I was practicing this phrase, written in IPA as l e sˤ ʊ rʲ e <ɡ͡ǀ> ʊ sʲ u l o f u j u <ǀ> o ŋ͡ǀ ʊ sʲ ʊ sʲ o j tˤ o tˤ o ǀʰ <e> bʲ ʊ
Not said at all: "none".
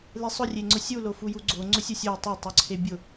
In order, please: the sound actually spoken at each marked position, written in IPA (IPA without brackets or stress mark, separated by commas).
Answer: ŋ͡ǀ, ɡ͡ǀ, e